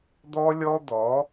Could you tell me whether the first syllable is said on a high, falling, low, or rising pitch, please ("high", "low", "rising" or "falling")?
high